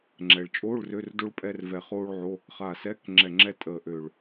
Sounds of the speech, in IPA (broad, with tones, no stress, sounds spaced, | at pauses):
ŋ͡ǁ ɛ˩ ɭ t͡ʃʼ oː˧˥˧ ɭ r ø˧˥˧ r d o˥ ɭ pʼ ɛ˥ r v ɛ˧˩ χ oː˥ ɭ ʕ o˧˥˧ | χ a˧˩ s ɛ˧˥˧ k ŋ͡ǁ ɛ˧˩ ŋ͡ǁ ɛ˥ tʼ əː˧˩ ʔ ø˧˩ ɭ